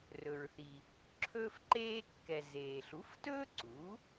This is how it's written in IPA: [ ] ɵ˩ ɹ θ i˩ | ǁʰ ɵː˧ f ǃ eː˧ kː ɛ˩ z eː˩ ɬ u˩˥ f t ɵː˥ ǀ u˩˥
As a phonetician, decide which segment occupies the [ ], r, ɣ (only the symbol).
r